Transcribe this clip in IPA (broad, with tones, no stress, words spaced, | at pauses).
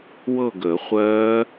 wɤ˦˨ɡəː˨˩˦χʷɜː˦˥